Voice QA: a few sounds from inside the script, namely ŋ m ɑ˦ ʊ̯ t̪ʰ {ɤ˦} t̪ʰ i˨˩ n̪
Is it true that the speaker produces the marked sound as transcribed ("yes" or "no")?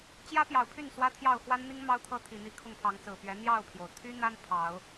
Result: yes